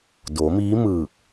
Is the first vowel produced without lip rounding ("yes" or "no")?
no